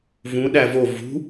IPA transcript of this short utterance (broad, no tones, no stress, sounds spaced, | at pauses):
v ũ ɗ æ v o v ṳ